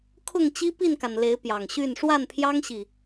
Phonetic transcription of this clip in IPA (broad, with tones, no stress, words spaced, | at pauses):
kʰʊ˥˨ŋt͡ɕi˦pi˥˨nka˩n le˨˦ɪ̯pjɑ˨˩ŋɕy˥˨n ʂwa˥˨npʰjɑ˦ŋɕi˨˩